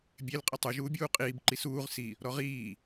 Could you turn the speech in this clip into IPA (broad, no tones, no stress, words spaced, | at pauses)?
bʲel qʼitˤu ʒuːbʲuːqʼiːb ǃisuːʁ si | ɾɔʁiː